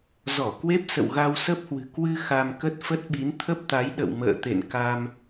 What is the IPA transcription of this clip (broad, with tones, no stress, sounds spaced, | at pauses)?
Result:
z ɔ˧˩ k w e˦˥ p̚ s ə̰˧˨ w ɣ a˧ w s ə˦˥ p̚ h w ɨ̤˨˩ k w ɨ˧ x a˧ m k ə˦˥ t̚ f ə˦˥ t̚ ɓ i˨˦ n t̪ʰ ə˦˥ p̚ t̪ a˨˦ j ɗ ə̰˧˨ w m ə̰ː˧˨ t̪ ḛ˧˨ n k a˧ m